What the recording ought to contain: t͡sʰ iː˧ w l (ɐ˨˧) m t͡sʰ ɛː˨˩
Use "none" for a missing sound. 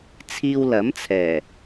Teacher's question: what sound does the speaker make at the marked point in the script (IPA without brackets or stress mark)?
ɐ˨˥